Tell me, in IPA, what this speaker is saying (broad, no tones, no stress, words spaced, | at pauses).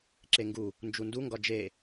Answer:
ǁeŋɡu | nd͡ʒundu ŋɡɒd͡ʒe